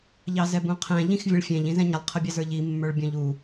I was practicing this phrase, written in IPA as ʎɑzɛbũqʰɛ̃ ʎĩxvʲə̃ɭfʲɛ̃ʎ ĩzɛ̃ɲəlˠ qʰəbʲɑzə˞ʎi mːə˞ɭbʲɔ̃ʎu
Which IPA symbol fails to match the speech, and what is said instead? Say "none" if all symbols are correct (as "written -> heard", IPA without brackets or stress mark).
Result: none